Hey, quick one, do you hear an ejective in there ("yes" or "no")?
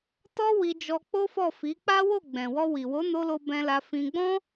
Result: no